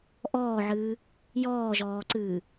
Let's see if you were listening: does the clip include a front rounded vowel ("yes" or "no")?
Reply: no